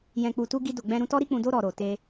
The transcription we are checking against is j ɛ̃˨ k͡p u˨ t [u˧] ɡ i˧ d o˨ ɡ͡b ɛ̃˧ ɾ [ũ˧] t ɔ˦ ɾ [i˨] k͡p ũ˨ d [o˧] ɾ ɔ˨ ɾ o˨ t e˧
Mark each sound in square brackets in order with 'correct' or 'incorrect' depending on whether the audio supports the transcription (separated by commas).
correct, correct, incorrect, correct